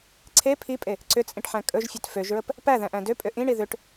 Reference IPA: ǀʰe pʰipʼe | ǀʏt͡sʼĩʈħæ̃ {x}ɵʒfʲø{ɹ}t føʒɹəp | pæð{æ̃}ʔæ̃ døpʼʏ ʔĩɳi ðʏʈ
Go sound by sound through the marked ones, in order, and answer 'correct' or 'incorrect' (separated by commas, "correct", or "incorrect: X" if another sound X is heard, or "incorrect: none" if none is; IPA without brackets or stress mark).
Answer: incorrect: kʼ, incorrect: none, correct